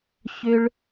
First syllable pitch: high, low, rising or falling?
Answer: high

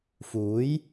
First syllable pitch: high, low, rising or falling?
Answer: rising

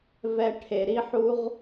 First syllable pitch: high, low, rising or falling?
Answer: high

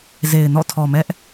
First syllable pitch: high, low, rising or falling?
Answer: low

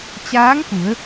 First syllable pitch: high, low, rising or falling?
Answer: rising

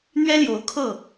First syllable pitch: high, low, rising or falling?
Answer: high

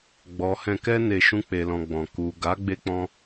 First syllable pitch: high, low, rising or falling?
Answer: low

